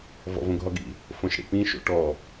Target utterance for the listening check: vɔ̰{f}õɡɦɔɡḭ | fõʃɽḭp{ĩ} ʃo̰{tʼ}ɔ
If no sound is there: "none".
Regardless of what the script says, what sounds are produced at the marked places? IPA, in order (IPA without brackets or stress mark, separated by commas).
v, ĩ, ʈ